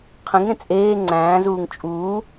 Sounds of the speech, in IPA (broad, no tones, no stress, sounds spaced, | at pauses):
qʰ ĩ ŋ ɾ ẽ t͡sʼ eː ŋ͡ǀ æ̃ː z uː ŋ t͡ʃʼ uː